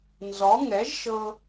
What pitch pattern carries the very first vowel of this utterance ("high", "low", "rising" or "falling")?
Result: rising